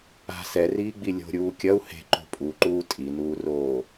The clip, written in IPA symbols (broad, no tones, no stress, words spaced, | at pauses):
a̤ sɛriːɡ͡bi lʲo̤ɾʲuː kʲɐu̯ he̤ǃo̤ pʼuǃuː tʼinuːroː